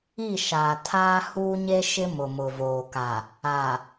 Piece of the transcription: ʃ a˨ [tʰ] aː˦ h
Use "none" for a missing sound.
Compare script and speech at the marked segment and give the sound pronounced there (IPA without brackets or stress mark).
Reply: tʰ